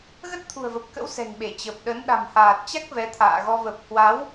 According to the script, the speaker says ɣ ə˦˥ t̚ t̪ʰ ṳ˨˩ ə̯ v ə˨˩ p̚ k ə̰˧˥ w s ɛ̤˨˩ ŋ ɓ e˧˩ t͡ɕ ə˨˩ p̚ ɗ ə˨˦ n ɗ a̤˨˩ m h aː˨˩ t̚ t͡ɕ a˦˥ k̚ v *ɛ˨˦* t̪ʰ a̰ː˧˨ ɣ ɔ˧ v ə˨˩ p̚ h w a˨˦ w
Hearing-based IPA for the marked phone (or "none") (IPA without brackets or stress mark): ɛ˨˦